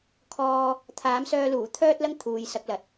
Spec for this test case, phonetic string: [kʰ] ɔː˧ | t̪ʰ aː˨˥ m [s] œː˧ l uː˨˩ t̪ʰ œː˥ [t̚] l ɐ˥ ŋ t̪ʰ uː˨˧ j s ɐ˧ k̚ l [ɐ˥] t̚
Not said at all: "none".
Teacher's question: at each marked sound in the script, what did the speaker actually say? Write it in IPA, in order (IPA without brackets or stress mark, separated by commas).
kʰ, s, t̚, ɐ˨